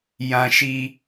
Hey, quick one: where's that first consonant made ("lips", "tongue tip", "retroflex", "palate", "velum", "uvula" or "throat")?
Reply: palate